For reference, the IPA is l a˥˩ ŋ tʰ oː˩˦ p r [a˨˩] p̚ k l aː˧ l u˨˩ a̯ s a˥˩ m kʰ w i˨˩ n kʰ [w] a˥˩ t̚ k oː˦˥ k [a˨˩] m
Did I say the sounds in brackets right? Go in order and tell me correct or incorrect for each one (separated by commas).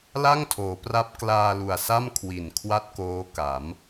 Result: incorrect, correct, incorrect